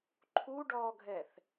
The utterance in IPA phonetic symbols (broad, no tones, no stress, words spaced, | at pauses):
ǃʰu ɖɔɡʱɛθ